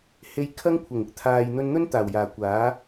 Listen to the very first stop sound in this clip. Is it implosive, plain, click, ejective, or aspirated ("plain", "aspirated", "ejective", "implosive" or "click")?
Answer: aspirated